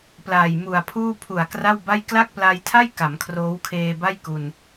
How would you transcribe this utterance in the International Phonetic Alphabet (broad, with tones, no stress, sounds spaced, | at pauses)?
p l aː˨˩ j m u˨˩ a̯ pʰ uː˥˩ pʰ u˨˩ a̯ k r a˥˩ w b a˥˩ j k l a˥˩ k̚ p l a˧ j tʰ a˥˩ j k a˩˦ m kʰ r oː˦˥ w kʰ eː˧ b a˥˩ j k u˧ n